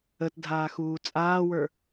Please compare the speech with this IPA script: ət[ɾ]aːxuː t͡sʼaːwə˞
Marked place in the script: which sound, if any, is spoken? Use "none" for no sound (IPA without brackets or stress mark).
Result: dʱ